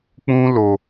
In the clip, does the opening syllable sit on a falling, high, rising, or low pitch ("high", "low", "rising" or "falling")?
high